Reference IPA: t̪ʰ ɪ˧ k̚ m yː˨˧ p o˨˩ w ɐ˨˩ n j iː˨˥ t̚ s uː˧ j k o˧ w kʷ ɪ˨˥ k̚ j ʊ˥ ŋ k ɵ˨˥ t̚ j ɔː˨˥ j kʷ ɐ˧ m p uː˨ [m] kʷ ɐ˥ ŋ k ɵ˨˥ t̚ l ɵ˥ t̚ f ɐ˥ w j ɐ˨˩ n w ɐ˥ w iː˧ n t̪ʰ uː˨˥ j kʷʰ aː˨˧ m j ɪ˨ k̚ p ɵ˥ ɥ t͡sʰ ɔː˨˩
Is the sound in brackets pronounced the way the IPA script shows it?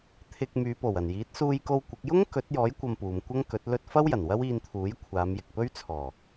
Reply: yes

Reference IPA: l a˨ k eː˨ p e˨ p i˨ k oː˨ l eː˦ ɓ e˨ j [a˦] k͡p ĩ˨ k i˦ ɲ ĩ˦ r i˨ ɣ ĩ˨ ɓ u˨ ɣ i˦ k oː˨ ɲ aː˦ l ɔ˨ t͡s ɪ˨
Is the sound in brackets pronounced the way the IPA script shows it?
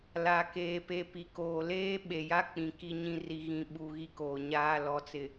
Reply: yes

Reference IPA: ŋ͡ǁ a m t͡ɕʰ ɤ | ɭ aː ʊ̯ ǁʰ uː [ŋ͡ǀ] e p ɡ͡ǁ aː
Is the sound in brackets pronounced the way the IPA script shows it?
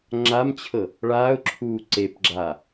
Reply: no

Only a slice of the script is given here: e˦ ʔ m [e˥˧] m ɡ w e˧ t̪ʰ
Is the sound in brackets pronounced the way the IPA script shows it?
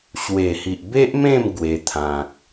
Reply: no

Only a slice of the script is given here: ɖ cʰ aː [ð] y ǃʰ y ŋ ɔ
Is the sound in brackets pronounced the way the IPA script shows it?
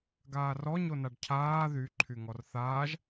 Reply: yes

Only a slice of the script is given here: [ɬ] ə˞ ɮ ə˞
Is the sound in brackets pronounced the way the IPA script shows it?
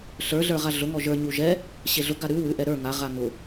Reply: yes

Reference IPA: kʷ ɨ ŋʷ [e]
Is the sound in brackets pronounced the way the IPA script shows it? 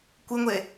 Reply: yes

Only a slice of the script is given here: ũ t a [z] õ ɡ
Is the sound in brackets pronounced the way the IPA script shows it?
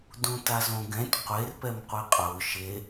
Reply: yes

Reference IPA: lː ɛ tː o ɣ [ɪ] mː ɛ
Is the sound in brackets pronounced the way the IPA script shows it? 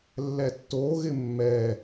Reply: yes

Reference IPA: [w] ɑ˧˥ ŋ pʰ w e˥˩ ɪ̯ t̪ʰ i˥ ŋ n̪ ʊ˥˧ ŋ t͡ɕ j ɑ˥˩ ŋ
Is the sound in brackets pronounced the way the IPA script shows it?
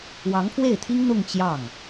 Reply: yes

